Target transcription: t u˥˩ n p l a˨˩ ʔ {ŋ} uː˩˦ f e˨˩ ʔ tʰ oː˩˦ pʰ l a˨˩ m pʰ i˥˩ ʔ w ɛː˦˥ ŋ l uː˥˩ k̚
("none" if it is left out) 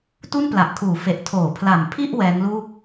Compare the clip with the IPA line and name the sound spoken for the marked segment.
kʰ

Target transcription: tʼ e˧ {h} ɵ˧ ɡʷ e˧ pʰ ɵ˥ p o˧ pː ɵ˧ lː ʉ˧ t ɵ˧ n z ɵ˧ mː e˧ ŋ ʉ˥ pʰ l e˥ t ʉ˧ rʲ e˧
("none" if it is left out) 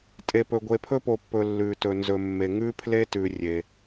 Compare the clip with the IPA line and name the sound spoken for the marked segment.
p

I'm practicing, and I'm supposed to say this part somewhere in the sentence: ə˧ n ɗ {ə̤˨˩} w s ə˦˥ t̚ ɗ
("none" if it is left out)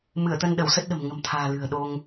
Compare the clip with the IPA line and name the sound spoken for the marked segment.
ə˧˩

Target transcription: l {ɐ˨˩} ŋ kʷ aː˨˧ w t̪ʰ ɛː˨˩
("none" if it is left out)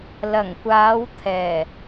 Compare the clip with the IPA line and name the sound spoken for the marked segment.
ɐ˨˩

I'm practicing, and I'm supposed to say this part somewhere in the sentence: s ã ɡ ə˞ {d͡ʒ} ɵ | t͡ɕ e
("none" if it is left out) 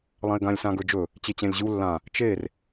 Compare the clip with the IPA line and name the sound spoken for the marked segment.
d͡ʒ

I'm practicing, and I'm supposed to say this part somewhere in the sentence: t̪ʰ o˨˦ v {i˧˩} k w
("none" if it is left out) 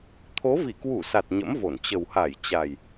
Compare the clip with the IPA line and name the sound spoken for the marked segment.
i˧˩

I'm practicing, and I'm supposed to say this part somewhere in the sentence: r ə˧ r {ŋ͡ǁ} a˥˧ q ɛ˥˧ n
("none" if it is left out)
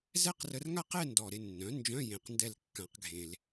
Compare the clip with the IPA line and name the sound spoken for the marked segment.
ŋ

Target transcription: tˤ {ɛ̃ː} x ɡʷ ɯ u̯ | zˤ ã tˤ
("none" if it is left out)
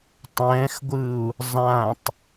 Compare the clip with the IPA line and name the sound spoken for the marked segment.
ɛ̃ː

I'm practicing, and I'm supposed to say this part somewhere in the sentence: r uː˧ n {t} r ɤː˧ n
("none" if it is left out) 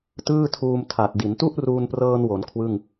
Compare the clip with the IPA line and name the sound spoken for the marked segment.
p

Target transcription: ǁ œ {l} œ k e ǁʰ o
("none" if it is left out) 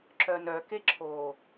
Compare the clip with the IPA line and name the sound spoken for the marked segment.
n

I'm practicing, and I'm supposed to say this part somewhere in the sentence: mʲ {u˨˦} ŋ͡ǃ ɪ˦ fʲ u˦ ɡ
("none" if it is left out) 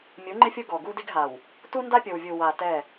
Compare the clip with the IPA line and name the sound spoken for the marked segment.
u˨˦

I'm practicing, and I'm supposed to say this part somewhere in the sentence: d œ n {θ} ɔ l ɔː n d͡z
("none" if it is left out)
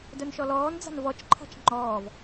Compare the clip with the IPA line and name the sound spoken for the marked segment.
ʃ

